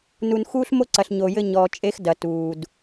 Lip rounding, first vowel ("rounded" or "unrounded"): rounded